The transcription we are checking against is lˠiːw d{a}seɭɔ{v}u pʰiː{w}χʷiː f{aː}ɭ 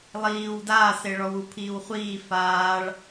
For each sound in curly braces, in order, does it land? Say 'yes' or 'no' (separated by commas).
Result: no, no, yes, yes